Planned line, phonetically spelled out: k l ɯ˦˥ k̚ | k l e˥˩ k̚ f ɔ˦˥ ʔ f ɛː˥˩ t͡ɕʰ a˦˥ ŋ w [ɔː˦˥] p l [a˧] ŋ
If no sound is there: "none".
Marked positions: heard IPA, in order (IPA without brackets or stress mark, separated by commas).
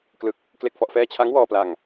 ɔː˧, a˧